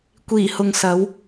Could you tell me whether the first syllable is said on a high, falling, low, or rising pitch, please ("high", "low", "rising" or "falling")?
low